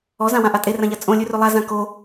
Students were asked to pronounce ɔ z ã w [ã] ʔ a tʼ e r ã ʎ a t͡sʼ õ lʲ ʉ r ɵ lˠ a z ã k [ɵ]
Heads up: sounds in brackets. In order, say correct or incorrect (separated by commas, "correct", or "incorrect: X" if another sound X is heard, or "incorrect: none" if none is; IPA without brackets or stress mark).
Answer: correct, incorrect: o